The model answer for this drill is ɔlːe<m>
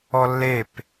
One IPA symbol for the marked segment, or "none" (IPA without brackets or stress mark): p